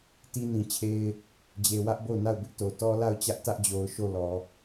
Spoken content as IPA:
t i˦ n ĩ˨ t͡ɕʰ e˦ ɪ̯ | d͡ʑ e˨ w ä˦ ʔ b o˦˨ ʊ̯ n a˦˨ ʊ̯ b ɪ˦ ʔ t o˨ t ɔ˦ l a˦˨ ʊ̯ t͡ɕ ä˦ ʔ t ä˦ ʔ d͡ʑ o˨ ʊ̯ ʃ o˦˨ l ɔ˨

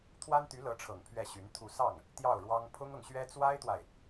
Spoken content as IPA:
t̪ʰ w a˥ n t̪ y˧˥ l ɤ˧˥ ʈ͡ʂʰ ɤ˨˩ ŋ pʰ ɥ ɛ˥˩ ɕ y˧˥ n t̪ʰ u˥˧ s ɑ˥˩ ŋ | t̪ j ɑ˥˩ ʊ̯ ɻ w ɑ˥ ŋ pʰ ʊ˥ ŋ ɤ˨ ŋ ɕ ɥ ɛ˥ t͡s w a˥ ɪ̯ t̪ w a˨ ɪ̯

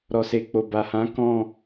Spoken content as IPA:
ɾ ɔ˨ s e˨ k͡p o˨ b a˨ h ã˨˦ k ɔ̃˦˨

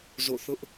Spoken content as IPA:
z o̰˦˨ θ ʊ˦ ʔ

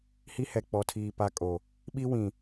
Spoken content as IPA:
h i˦ h ɛ˨ k͡p ɔ˨ tʰ iː˨ p a˦ kʼ o˨ | ɓ i˦ w ĩ˨

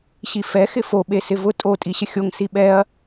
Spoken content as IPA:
ɕ i f ɛ x ɪ f o ɓ e s ɪ v ʊ tʼ o tʼ i ɕ ɪ xʲ o ŋ s i ɓ ɛ ɐ̯

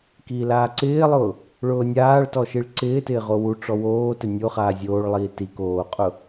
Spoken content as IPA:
k iː l aː ǀ ɪː lˠ ʊː | ɭ ʊː nʲ aː ɭ t ɔ ʃ i ɭ ǀ ɪː t ɪː ʁ o w u ʈ͡ʂ ɔ w oː t ɪ nʲ o χ aː zʲ oː ɭ lˠ iː t i k oː qʼ ʊ

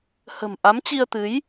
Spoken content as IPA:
h ə̤˨˩ m ʔ a˨˦ m t͡ɕ i˧ ə̯ t̪ ɨ˨˦ j

